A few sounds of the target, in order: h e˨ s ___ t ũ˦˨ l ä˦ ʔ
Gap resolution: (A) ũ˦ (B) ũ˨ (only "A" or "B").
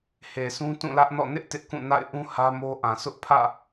A